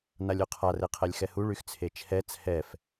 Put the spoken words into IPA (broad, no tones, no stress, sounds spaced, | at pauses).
n a lʲ u qʰ a r e qʰ ɛ lʲ x ɛ h u ɭ y x t͡sʰ e t͡ʃʰ ɛ t͡sʰ ɛ f